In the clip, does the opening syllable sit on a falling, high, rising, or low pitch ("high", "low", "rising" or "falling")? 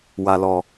low